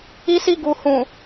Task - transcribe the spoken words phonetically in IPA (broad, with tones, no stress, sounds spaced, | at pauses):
i˦ s i˦ ɡ u˨ h ũ˨